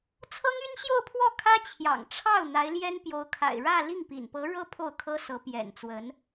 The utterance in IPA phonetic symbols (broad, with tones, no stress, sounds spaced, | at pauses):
t͡sʰ ɤ˥ ŋ y˥ n ɕ j o˥˧ ʊ̯ pʰ w ɔ˥˩ kʰ ä˥ t͡ɕʰ j ɑ̰˨˩ ŋ ʈ͡ʂʰ ɑ˥˩ ʊ̯ n̪ a˧˥ ɪ̯ l j ɛ˥ n p j o˧˥ ʊ̯ kʰ a̰˨˩ ɪ̯ ɻ ä˥˧ l i˥˩ ŋ p ḭ˨˩ n p ɤ˧˥ ɻ ɤ˥ pʰ o˥˩ ʊ̯ kʰ ɤ˥ s ɤ˧˥ p j ɛ̰˨˩ n t͡s w ə˧˥ n